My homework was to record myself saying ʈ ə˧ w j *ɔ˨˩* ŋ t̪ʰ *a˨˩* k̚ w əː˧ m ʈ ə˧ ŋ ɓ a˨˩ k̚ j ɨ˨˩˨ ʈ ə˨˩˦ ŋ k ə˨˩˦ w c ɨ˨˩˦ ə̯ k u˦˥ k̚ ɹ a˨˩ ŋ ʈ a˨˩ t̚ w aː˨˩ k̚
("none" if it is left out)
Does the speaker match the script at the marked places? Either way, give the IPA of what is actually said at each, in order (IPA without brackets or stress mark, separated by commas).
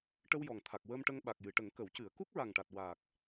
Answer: ɔ˨˩, a˨˩